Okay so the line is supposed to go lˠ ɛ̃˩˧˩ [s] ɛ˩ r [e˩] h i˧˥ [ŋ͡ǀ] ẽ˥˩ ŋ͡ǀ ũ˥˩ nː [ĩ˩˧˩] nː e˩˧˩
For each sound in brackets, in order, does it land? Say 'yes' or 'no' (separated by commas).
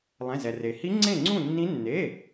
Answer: no, yes, yes, no